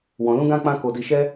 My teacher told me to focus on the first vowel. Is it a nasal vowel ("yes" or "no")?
yes